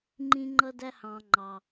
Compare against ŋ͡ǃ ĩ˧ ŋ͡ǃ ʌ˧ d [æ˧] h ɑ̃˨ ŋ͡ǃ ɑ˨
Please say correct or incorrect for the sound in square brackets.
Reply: correct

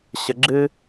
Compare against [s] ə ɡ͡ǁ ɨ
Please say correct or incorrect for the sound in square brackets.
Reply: incorrect: ɕ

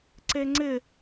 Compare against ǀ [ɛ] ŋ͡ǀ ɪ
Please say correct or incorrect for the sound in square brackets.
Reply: incorrect: e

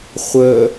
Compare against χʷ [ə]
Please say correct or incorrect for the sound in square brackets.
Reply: correct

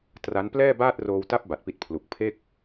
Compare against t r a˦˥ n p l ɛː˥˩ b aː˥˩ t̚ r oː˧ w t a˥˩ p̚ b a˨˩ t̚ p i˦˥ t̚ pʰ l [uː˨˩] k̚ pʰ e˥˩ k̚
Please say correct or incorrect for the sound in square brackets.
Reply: incorrect: u˨˩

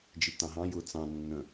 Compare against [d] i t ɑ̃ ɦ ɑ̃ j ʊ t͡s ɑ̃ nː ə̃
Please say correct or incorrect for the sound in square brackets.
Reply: incorrect: d͡ʒ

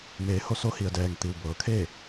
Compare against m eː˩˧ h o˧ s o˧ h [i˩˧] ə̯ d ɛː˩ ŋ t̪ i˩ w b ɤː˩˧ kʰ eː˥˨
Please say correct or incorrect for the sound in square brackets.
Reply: incorrect: i˩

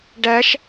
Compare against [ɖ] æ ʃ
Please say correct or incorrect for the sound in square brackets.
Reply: correct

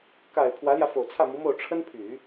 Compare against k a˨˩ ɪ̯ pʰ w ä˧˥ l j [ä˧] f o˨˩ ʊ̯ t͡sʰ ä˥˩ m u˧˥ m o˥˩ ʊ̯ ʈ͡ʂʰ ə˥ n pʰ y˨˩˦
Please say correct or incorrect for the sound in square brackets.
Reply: correct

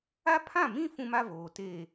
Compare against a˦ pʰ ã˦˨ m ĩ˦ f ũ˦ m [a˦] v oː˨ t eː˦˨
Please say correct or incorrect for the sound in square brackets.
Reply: correct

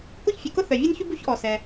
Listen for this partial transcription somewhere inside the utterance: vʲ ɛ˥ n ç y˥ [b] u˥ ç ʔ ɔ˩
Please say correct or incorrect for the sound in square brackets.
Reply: correct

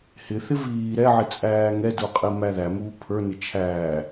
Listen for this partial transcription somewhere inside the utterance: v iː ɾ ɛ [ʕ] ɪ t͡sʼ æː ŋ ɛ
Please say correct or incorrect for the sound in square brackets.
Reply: correct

